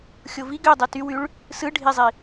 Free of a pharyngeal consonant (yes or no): yes